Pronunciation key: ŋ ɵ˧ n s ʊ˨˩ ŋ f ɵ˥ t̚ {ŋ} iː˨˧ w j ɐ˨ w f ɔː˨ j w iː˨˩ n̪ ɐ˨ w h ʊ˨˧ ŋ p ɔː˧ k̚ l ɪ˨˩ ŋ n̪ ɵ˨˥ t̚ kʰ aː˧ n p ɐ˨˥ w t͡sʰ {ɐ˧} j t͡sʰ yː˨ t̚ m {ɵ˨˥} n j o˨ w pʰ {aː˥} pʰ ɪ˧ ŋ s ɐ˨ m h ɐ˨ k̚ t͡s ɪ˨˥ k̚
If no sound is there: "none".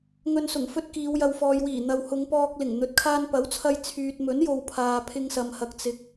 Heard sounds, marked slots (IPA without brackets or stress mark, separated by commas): k, ɐ˧, ɵ˨˥, aː˨